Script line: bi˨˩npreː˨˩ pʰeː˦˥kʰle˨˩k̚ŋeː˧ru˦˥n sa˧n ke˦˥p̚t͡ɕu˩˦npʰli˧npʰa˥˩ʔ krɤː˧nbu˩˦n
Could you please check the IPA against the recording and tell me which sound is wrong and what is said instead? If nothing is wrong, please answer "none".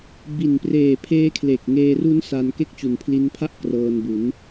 p̚ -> k̚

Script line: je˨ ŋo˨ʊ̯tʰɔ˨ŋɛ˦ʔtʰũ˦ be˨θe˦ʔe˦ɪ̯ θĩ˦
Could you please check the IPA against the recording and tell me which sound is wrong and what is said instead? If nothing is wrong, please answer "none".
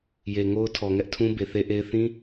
o˨ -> o˦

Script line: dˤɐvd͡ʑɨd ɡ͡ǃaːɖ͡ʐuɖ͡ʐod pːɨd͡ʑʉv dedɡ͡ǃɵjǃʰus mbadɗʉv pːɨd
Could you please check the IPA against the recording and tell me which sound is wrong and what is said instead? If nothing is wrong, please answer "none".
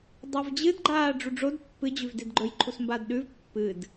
none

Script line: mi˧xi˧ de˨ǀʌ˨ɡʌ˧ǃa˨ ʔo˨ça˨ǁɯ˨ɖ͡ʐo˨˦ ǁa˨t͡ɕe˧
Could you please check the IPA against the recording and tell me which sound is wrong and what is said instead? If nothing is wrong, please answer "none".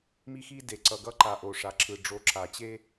ç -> ʂ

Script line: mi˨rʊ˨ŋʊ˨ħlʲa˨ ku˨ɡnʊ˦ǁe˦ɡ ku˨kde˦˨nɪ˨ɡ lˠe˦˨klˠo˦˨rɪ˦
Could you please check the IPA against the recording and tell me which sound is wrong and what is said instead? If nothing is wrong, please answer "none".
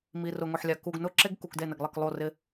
none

